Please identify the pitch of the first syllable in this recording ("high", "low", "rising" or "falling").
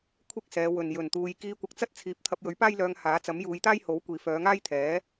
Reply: high